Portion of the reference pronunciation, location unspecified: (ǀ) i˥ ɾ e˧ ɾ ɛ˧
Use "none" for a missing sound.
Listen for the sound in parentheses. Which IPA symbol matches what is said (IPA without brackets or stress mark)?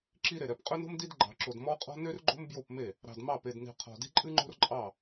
ǁ